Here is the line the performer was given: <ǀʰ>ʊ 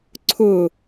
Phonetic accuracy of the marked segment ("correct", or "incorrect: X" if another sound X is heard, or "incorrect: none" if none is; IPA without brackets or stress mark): correct